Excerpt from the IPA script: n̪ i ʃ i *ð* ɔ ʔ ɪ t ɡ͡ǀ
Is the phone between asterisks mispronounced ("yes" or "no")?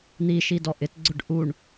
yes